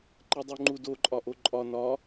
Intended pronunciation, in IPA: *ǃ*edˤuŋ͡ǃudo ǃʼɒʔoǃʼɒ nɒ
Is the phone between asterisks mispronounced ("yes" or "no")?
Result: no